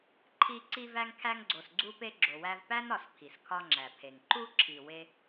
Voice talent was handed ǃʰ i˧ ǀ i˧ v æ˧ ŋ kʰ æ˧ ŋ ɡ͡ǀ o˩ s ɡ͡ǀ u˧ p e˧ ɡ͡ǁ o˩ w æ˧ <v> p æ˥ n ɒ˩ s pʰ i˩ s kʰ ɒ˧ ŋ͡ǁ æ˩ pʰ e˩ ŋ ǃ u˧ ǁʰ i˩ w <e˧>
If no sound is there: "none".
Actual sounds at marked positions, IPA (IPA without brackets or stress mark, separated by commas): v, e˧